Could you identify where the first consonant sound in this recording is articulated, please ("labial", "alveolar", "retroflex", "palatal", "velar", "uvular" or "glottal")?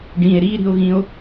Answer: retroflex